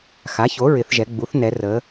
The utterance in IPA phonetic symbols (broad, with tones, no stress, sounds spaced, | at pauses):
x a˩˥ ç o˩˥ ɹ ɪ˩˧ θ ʒ ɛ˩˧ ɡ͡b u˩˥ θ n ɛ˩˧ r ə˩˧